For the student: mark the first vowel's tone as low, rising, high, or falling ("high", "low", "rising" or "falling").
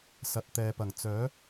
low